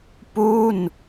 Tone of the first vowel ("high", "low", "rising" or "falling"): falling